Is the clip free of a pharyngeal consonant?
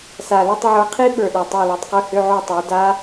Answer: no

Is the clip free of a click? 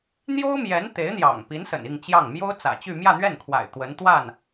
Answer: yes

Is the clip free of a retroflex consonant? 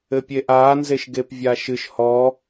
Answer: yes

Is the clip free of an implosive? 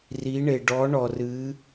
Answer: yes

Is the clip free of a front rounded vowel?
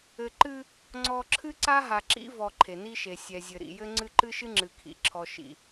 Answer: yes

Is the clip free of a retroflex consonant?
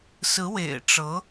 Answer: no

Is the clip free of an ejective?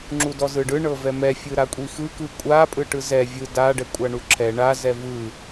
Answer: no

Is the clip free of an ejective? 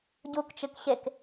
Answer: yes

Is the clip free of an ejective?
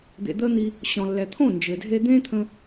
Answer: yes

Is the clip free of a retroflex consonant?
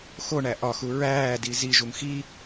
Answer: no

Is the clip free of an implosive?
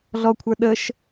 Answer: no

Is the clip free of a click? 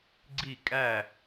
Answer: no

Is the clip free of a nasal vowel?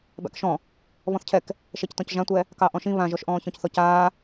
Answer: no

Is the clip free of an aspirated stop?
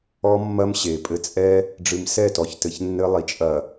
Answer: yes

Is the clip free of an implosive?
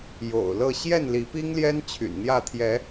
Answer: yes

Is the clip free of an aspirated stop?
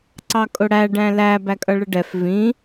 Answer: yes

